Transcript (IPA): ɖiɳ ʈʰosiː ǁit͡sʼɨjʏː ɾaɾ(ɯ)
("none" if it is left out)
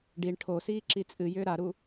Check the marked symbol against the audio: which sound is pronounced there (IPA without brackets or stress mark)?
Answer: u